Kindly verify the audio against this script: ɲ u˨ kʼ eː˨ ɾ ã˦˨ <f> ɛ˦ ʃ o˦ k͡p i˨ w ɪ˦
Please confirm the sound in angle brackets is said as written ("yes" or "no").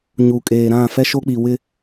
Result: yes